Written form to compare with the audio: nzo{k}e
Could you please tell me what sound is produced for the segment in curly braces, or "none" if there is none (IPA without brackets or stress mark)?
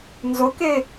k